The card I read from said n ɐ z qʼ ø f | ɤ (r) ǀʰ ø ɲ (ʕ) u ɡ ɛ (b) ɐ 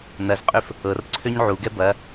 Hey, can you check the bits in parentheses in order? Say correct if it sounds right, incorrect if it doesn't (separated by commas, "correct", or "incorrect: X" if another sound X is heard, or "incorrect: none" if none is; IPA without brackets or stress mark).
correct, correct, correct